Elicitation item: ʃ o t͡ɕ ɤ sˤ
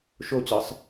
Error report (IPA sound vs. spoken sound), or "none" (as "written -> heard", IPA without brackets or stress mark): none